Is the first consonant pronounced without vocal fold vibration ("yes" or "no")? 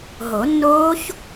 no